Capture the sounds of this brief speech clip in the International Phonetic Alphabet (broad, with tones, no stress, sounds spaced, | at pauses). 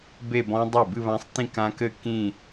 b e˥˧ b ɔ̃˦˥ dˤ ɨ˥˩ b ɨ˥˧ β ã˦˥ sˤ t ĩ˥˧ k ã˦˥ k ɘ˥˧ k ĩ˥˧